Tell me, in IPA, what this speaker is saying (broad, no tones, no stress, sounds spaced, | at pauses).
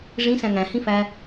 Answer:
ʐ ĩ s æ̃ ŋ æ̃ h ĩ f æ